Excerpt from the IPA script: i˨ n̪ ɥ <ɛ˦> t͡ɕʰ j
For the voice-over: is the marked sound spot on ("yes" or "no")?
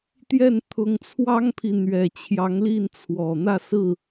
no